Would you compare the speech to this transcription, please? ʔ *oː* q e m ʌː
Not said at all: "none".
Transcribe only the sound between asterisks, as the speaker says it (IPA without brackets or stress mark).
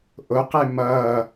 o